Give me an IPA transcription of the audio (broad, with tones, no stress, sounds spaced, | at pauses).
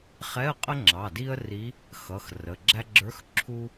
χ ɛ˧˥˧ ə̯ qʼ ə˥ ŋ͡ǁ ɑ˩˧˩ d i˥ ə̯ r i˧˥ | x ʌ˩˧˩ x r ə˩˧˩ ɡ͡ǁ æ˥ ɡ͡ǁ ə˞˧˥˧ x ǁʰ u˥